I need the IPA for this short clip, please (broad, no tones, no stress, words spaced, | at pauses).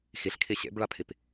xiɬkʰi ɕḛbɭapʰip